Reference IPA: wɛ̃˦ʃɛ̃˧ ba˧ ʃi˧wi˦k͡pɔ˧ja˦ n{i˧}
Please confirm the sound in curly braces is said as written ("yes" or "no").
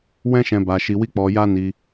yes